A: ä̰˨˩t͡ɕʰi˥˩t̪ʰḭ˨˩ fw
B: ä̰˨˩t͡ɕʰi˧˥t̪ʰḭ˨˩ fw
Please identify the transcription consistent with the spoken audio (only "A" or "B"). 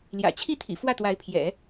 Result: A